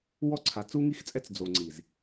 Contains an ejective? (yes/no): yes